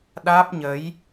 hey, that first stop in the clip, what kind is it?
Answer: implosive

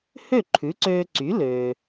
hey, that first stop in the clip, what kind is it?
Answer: click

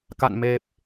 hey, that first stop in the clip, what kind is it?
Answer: plain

